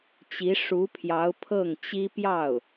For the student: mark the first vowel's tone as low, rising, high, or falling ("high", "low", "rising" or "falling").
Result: rising